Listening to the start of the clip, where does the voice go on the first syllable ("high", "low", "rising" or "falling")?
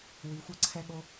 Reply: rising